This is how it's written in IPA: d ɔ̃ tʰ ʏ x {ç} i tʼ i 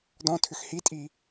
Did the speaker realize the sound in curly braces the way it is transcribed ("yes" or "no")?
no